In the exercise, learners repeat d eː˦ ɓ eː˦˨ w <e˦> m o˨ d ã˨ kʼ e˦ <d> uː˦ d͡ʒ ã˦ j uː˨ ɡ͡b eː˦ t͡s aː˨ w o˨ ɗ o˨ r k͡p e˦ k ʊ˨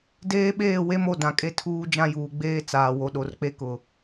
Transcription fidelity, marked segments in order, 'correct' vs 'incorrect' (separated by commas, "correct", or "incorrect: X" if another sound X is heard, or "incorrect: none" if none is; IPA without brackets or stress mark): correct, incorrect: tʰ